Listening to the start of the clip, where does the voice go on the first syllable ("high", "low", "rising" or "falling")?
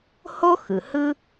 high